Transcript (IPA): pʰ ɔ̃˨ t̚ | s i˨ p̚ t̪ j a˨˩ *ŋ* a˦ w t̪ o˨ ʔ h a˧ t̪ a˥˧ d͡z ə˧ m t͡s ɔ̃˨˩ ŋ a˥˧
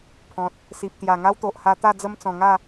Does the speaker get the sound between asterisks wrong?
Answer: no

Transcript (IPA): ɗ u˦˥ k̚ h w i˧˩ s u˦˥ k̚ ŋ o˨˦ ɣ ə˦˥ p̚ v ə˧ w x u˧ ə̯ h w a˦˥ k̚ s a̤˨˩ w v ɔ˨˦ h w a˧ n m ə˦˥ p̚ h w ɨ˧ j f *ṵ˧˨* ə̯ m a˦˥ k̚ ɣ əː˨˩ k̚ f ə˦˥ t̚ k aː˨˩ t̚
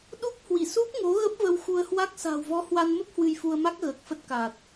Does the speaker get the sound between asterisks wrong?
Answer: yes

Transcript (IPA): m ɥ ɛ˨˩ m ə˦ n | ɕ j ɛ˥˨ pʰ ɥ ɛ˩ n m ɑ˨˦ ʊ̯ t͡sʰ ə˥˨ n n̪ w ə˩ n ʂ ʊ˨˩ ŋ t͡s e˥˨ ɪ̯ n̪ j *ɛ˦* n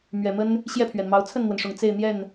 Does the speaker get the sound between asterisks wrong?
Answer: yes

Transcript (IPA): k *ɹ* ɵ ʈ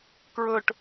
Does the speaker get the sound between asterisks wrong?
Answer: no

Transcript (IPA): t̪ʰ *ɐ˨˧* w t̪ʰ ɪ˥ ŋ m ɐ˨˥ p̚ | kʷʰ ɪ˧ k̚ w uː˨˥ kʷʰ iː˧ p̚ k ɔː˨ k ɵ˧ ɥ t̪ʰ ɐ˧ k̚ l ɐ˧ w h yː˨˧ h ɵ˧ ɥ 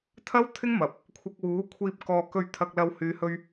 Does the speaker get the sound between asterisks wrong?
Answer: yes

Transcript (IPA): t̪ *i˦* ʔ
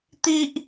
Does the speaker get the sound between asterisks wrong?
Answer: no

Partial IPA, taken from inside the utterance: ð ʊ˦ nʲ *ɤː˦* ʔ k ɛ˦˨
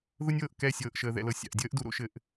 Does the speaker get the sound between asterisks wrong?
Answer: yes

